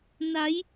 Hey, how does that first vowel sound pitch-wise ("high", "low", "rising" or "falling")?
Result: rising